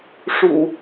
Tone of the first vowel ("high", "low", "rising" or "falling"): low